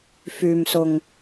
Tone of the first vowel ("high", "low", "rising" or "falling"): low